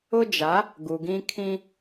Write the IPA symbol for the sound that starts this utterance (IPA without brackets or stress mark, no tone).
ʊ